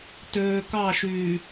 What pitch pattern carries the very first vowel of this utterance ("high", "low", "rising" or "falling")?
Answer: low